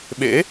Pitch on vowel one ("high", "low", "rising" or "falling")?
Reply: rising